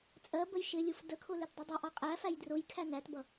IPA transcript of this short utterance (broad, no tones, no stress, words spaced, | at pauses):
t͡sʼɜbəj ʃɪlʲuf dəkʰʊ lɪtdˤʌdˤʌʔɑ qʼæfæj drʊj kʰænætbʌ